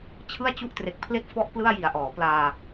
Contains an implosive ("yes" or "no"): no